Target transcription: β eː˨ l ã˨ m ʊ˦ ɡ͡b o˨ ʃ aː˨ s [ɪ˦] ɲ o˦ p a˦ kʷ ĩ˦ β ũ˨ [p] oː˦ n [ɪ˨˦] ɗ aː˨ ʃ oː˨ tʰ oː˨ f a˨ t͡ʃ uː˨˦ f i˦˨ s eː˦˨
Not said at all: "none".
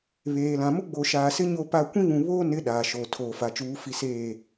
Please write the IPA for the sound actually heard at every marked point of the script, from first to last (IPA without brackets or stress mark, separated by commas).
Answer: ɪ˦, β, ɪ˨˦